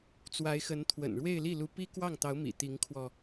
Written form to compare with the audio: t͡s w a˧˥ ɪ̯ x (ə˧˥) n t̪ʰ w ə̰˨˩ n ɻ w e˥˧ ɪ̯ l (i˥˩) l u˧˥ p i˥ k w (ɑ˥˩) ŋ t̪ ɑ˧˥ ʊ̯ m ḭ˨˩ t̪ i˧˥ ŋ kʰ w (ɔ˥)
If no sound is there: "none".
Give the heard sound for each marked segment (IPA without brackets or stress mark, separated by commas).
ə˧˥, i˥˩, ɑ˥˩, ɔ˧